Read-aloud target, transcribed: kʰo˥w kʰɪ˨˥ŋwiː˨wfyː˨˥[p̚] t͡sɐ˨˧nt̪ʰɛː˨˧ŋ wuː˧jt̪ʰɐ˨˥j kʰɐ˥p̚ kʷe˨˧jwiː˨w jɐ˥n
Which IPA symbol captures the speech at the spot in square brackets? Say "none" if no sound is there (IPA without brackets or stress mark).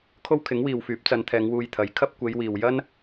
p̚